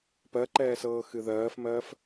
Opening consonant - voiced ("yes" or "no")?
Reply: no